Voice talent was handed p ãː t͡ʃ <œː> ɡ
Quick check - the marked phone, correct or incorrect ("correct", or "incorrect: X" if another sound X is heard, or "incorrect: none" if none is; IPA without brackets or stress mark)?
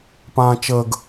incorrect: əː